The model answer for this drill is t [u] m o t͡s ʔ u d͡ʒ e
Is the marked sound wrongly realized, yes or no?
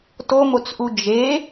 yes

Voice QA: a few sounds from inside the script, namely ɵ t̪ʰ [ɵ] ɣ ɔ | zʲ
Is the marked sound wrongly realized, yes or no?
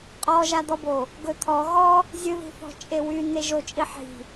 yes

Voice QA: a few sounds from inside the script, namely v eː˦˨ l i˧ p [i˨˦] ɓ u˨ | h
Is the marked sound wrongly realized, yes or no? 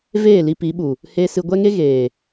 no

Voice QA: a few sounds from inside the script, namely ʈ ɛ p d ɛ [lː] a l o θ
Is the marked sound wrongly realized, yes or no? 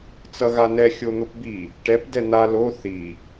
yes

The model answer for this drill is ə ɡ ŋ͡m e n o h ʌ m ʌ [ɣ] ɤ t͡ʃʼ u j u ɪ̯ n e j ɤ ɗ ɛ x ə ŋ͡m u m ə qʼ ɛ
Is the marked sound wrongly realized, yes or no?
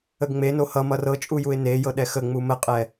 yes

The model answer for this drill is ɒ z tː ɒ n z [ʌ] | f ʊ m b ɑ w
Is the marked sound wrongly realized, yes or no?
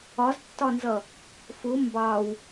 no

